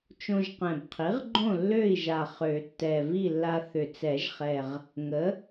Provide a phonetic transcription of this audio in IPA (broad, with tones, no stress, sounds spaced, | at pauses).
t͡ʃ õ˧ ʒ q ɛ̃˨˩ b qʰ i˩˥ ʁ ɡ͡ǃ õ˥˨ lː ø˥˨ i̯ ʒ a˨˩ χ ø˨˩˦ tː ɛ˨˩ v i˥˨ lː a˧ θ ʏ˨˩ t͡s ɛ˨˩˦ ʒ χ ɛ˨˩ ʁ | ŋ ə˩˥